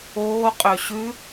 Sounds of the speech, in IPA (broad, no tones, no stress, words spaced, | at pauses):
oːqʼø ɕʉ